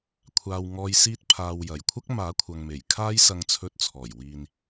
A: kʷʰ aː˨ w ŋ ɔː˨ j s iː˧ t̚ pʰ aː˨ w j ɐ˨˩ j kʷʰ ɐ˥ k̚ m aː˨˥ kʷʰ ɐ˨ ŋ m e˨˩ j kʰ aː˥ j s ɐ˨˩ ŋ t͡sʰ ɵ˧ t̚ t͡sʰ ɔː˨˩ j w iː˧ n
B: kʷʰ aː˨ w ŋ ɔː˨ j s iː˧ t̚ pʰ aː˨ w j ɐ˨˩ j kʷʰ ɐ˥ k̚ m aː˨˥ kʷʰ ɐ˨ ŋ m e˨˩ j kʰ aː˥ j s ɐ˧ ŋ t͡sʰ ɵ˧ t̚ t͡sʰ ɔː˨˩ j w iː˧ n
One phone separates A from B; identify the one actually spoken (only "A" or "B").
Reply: B